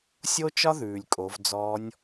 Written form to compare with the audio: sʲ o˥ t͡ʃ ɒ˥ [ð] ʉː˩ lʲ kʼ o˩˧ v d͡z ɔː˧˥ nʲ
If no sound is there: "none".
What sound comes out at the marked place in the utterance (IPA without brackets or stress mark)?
ð